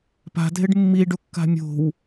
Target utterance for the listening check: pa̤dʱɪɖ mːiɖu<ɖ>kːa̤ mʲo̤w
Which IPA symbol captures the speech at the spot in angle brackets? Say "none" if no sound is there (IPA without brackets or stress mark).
none